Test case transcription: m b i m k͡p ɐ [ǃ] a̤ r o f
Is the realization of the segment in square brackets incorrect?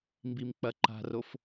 no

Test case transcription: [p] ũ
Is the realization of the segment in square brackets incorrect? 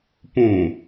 no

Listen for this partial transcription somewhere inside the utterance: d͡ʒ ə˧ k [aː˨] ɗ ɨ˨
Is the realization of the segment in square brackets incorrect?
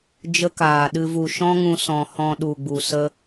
no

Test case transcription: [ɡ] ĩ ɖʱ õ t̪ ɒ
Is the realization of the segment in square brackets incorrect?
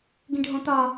no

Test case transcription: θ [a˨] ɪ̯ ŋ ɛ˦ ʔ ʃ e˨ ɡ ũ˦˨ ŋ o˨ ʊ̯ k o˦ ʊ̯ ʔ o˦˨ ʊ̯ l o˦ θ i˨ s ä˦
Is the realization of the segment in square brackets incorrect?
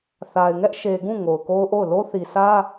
no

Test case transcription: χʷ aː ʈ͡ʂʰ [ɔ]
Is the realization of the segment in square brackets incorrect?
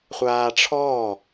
yes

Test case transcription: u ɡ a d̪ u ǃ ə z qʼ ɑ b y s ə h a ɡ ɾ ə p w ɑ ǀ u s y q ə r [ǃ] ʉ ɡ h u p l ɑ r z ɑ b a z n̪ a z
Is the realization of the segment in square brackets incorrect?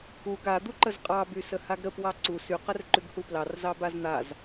no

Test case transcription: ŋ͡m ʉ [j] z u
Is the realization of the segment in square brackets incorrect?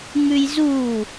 no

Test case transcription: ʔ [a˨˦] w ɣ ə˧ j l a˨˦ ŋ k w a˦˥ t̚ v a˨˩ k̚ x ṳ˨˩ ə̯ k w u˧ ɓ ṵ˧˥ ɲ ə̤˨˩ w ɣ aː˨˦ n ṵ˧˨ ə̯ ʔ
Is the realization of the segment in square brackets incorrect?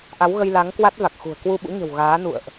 no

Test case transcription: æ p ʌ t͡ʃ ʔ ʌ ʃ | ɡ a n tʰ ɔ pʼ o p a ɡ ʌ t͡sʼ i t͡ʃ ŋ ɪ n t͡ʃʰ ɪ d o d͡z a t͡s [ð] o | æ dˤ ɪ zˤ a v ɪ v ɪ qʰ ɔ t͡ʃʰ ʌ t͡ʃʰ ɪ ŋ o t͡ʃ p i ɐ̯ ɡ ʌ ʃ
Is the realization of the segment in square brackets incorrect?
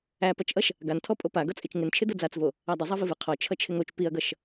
yes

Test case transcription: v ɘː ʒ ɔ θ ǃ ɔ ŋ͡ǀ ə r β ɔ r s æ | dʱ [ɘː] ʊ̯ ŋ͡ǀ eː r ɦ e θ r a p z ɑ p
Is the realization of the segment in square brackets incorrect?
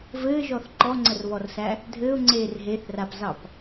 no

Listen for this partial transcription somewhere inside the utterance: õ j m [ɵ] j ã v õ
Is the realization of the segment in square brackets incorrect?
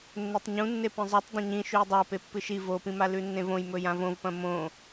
no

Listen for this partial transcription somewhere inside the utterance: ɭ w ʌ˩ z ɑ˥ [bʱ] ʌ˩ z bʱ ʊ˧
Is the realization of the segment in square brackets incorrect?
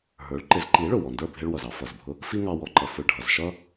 yes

